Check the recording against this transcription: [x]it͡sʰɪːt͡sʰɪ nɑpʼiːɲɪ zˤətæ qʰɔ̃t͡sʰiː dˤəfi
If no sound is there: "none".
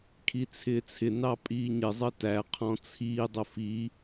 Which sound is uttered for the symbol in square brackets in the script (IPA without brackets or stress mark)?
kʰ